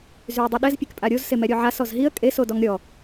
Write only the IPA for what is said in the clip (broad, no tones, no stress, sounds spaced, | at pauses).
z y ə̯ dˤ i ɗ ɛ z pʲ e k pʼ a ɾʲ o z s e m ɛ ɾʲ o ʕ a s ɔ z ɦ i ə̯ kʼ e s o d ɔ ŋ ɾʲ ɔ